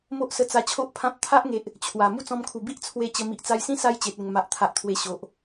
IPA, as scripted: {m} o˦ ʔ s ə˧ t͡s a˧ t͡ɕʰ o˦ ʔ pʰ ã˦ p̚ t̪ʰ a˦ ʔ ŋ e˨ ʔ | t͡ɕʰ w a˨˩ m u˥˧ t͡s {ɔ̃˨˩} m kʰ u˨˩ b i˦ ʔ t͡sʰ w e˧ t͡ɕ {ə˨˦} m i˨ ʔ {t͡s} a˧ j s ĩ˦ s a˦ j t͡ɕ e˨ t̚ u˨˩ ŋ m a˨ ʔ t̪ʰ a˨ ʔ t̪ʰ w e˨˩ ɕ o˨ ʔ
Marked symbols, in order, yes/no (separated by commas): yes, no, no, yes